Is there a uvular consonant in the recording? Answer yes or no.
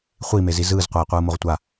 yes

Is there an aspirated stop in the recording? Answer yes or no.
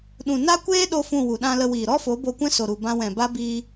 no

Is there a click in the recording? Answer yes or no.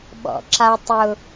yes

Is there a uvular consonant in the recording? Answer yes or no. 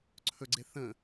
no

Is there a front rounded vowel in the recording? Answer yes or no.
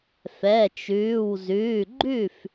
no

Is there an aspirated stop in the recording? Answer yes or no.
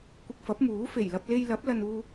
no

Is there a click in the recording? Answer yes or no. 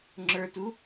yes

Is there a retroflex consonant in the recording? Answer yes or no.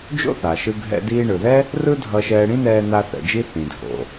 yes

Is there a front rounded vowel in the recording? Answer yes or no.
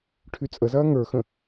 yes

